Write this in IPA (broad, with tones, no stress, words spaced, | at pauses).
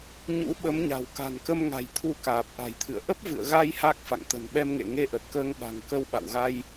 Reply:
ɲṵ˧˥ ɓə˨˦mɲa̤˨˩w ka̤˨˩nkə˧m ŋa̤˨˩jt̪ʰu˧kaː˨˩p̚ ʔa̤˨˩jt̪ʰɨ̰˧˨ə̯ ʔə˦˥p̚vɨ̰˧˨ə̯ɣa˧j ha˦˥k̚fa̰˧˨ŋ t̪ə̤˨˩nɓɛ˧mŋḛ˧˨ ŋe˧ʔə˨˩t̚kəː˧ŋ ɓa̤˨˩ŋkə˧w ɓa̰˧˨wɣa˧j